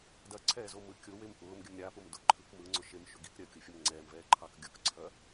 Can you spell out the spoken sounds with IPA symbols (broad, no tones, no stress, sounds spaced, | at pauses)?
d ɐ ǀʰ ɛː z o m ɯ kʲ o w e m ʔ ʊː m ɡʲ ə m ɾʲ a p ʊ m d ʊ ǃʰ ɯ k m ɯ ŋ͡ǀ ʊ ʃ e m ʃ ʊ ɡ i k ɾʲ ɐ kʲ o fʲ ə m ŋ͡ǀ ɛː m v ɛː ǃʰ ɑ k ɡʲ ʊ k ǀʰ ɐ